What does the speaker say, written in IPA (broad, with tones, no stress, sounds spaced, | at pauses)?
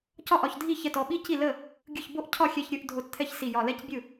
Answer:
c ɒ˥˩ ʔ ɒ˧˩ ç dʱ i˥˩ ç ɛ˧˩ t ɔ˧˩ ɓ i˥˩ c i˥˩ l ə˥˩ | ɡʲ ɯ˧˩ ç b o˥˩ ʔ cʰ ɒ˥˩ xʲ ɛ˧˩ ç ɾʲ ɯ˥˩ ʔ dʱ o˧˩ t t̪ʰ ɛ˥˩ ç s i˧˩ j ɒ˧˩ l ɛ˥˩ c bʲ ɯ˥˩